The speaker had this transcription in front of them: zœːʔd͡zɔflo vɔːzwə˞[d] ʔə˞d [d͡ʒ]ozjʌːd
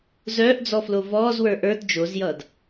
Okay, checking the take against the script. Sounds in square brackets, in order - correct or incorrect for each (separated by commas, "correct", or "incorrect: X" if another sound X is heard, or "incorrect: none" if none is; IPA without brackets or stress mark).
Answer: incorrect: none, correct